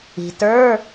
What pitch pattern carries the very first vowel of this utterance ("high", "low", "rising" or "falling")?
low